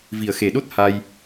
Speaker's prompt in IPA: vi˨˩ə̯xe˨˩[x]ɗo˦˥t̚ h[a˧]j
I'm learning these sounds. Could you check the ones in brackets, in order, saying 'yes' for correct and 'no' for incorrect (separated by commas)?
no, yes